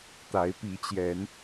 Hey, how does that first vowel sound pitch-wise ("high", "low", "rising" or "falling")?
rising